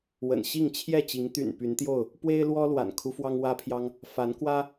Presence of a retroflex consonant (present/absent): absent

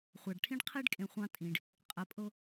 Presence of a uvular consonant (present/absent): present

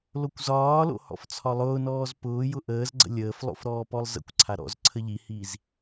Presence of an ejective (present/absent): absent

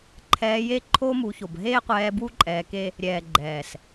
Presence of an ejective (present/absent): present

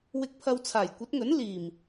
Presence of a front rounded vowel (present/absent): absent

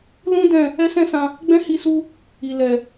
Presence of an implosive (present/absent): absent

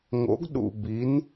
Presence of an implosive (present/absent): present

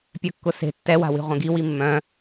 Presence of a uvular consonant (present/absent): present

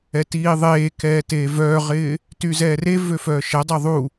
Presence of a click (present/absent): absent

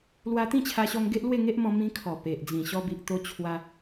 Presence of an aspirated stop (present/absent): present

